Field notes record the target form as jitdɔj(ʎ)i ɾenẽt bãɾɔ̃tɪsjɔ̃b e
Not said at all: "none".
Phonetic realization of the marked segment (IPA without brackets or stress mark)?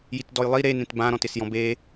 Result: lˠ